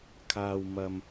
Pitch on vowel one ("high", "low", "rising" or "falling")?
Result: low